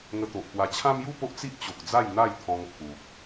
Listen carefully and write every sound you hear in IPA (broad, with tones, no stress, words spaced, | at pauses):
ŋə˧t̪o˨ʔpwa˧ t͡ɕʰã˦mju˥˧po˦ʔ t͡si˦ʔt͡ɕo˨k̚d͡za˥˧j n̪a˥˧jt̪ʰɔ̃˧ŋpʰu˨k̚